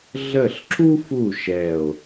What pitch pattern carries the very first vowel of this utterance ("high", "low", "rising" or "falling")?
falling